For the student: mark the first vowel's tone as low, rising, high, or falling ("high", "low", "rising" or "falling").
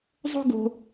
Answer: high